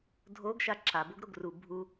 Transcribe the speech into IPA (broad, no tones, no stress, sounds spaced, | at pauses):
dʱ o ɡ ʃ a ǁʰ a b o ɡ ɾ o ɡ r u bʱ u